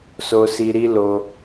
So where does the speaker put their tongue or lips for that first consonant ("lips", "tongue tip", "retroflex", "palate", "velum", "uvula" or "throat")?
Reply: tongue tip